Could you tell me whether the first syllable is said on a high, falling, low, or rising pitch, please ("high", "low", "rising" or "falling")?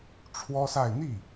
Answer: high